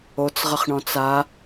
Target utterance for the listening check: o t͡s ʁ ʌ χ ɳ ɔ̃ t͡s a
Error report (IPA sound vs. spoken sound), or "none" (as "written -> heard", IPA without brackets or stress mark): none